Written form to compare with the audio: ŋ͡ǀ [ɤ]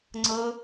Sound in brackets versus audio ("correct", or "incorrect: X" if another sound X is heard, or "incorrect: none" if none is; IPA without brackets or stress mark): correct